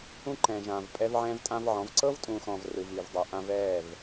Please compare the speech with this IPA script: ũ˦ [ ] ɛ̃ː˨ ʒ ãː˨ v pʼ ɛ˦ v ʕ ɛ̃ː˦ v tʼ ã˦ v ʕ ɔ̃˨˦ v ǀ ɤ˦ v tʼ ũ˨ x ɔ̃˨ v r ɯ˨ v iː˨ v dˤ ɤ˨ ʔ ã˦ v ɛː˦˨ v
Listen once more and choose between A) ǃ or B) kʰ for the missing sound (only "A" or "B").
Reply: A